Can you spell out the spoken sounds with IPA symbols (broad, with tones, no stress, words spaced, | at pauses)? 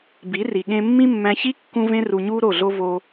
bi˨˦ri˨ɠẽ˧mːĩ˦ mːæ̃˧çi˦ kːũ˧vẽ˧ ru˨ɲu˧ ɾo˦˨ɮo˦ vo˧